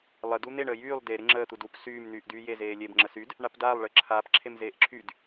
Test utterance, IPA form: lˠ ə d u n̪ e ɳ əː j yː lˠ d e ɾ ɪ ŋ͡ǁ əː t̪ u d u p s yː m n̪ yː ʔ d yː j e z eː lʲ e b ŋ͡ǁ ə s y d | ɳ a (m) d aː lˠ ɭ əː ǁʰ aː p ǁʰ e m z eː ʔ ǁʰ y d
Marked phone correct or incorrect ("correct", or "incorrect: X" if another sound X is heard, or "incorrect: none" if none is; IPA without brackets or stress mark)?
incorrect: p